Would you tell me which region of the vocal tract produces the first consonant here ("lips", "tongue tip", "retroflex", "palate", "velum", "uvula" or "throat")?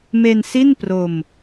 lips